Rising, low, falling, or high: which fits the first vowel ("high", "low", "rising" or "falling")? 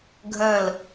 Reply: falling